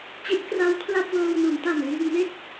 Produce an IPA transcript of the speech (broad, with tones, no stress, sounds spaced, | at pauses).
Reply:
t͡ɕ i˦˥ t̚ k r a˦˥ w kʰ l a˥˩ p̚ w ɤː˧ w n u˩˦ n t a˨˩ n l iː˧ ŋ m e˥˩ k̚